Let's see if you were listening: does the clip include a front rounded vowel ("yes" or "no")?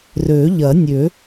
yes